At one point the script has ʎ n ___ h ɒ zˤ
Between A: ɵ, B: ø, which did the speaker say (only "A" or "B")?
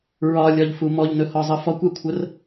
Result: A